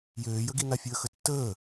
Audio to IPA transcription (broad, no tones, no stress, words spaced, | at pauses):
jøːjəɡina fʲəːxətːəː